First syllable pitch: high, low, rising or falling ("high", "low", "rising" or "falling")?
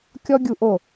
high